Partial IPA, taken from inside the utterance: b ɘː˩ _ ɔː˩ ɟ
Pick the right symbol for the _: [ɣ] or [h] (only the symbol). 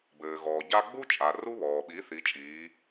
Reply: ɣ